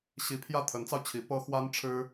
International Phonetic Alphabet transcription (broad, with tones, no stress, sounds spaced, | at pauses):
ɕ i˧˥ pʰ j ä˥˩ t̪ʰ ə˧˥ n t͡s ɑ˧ ʊ̯ t͡ɕʰ i˧˥ p ɤ˥ x w a˥ n ʈ͡ʂʰ ɻ̩˥